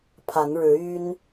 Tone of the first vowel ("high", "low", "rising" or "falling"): rising